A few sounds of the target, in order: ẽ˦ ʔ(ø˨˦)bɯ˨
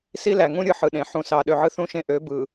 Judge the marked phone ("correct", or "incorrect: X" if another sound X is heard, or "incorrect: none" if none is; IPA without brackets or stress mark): correct